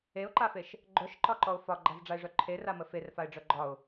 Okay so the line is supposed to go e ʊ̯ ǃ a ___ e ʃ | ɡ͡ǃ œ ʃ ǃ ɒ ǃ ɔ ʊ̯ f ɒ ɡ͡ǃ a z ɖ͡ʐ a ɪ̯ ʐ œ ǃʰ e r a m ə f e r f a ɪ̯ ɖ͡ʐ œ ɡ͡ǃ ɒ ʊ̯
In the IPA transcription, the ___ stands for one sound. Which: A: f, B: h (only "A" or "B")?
A